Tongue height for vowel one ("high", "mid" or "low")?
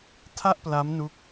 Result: low